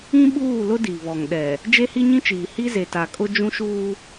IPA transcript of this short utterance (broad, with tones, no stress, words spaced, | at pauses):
ĩ˦ɓuː˦˨lʊ˦di˨ βɔ˨ŋɗɛ˨ | d͡ʒe˦hi˦ɲĩ˦t͡ʃiː˨ hi˦ze˨ta˨kʼʊ˦ d͡ʒũ˦ʃuː˦